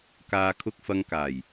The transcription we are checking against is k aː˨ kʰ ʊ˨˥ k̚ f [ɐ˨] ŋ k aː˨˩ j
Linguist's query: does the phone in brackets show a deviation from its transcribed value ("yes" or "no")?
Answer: no